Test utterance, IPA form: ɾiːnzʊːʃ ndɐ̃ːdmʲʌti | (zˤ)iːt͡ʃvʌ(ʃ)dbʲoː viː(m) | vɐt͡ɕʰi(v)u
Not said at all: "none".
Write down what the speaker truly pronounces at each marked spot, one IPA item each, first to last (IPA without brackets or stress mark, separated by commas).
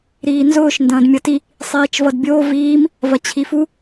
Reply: sˤ, none, m, f